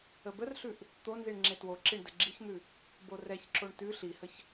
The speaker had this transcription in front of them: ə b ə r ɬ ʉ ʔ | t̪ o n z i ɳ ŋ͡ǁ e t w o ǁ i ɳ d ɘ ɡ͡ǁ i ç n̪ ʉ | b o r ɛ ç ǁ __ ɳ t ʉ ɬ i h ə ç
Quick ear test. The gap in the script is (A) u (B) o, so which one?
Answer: B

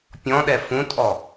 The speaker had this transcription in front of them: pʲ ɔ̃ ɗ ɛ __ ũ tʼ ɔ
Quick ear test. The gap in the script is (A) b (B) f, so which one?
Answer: B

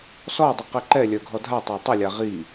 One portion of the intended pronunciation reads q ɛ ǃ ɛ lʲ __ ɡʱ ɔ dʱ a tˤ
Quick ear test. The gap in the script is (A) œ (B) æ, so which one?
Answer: A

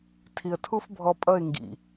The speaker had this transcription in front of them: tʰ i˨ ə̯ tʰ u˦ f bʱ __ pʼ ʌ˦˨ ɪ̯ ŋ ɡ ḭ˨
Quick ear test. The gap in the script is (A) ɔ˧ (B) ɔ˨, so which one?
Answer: A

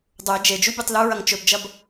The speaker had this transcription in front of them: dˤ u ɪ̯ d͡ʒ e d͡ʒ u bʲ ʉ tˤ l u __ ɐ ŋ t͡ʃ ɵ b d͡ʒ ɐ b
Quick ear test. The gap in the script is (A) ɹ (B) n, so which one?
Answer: A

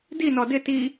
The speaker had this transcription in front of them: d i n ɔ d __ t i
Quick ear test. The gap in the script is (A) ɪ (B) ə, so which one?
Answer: A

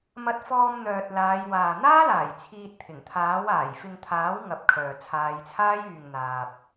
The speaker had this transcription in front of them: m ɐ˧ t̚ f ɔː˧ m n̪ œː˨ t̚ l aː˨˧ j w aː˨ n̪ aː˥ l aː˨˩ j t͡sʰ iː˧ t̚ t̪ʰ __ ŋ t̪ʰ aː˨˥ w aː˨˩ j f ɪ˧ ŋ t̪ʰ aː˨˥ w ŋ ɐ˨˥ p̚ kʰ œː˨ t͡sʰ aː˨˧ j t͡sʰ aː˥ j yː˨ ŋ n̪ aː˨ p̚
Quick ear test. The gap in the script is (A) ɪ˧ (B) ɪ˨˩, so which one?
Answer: B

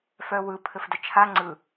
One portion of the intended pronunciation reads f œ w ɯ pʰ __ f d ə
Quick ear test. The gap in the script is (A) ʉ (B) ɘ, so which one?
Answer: B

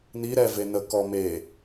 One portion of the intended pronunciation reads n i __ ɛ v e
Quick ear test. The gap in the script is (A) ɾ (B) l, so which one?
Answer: A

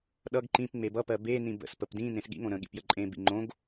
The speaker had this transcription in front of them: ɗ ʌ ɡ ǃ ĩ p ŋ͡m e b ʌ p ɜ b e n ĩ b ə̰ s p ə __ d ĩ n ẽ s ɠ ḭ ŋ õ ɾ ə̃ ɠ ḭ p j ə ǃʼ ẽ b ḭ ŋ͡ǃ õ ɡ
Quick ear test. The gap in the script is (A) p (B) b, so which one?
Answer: A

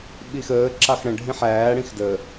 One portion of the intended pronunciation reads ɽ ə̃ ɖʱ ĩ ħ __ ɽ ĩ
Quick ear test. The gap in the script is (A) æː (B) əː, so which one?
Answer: A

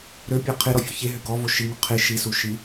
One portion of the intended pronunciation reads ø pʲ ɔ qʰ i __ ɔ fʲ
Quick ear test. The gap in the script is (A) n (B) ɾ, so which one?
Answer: B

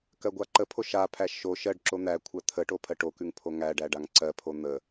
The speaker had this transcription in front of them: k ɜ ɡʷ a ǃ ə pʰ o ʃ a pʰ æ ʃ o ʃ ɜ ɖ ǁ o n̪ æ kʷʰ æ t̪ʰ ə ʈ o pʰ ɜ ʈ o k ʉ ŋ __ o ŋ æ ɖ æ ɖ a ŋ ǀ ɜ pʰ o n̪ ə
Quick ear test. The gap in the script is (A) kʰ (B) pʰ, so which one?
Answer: B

